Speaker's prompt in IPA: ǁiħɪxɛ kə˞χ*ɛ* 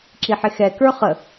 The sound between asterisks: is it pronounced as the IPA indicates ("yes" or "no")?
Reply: no